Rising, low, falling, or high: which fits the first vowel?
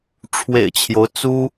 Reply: low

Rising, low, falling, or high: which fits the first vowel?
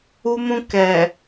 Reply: high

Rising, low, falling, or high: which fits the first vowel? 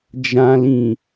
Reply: low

